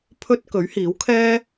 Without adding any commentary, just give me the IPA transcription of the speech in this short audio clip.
pʰɵ˥t̚ kɵ˨˥ɥhiː˨˥wkʰɛː˥

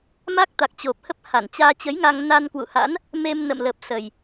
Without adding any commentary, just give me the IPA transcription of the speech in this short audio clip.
ma˦˥k̚ t̪a˨˩k̚t͡ɕo˨˩p̚hə˦˥p̚ ha˧˩nt͡ɕaː˧t͡ɕə˨˦jŋa˧ŋ na˧nkwṵ˧˨ha̰˧˥n | me˧mnə̰˧˨mlə˨˩p̚ sə˨˩j

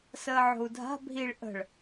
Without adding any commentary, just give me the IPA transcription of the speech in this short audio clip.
səːʕo̤u̯dʱa̤ bʱiɭ ʔə̤ɭ

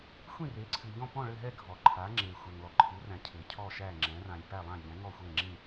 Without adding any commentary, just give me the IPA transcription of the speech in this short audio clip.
xʷĩ˥˨re˩˥ǀʰɨ˩ʎɔ̃˥˨ pɔ̃˥˨ɭɘ˥˨ɦɛ˥˨ ɡʱɔ˩ ǃʰa˩˥ ŋ͡ǁe˩ xʷɛ˩ŋlɔ˩ǃʰɨ˩˥ræ̃˩ cʰɘ˩cʰɔ˥˨ʃæ˥˨ŋ͡ǁɛ̃˩˥ rã˩lʲ pæ˥˨lˠã˥˨ʎɛ̃˩˥ ŋɔ˥˨xʷe˥˨ŋ͡ǁĩ˥˨

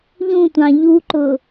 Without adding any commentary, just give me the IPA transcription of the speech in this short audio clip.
ʎũtʷɑ̃ ʎuǃʊ

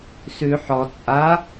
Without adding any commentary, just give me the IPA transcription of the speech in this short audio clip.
sʉ ħɔ t͡sʼa

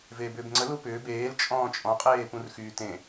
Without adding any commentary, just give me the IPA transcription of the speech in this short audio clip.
veːbʏːbŋ͡ǀə lupʏː beːl t͡ʃʼɔ̃ːt͡ʃʼɔ̃ qʼeːpũrxyːtẽ

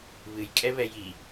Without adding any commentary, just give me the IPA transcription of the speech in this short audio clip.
βɨjkʼɛβɛ ji

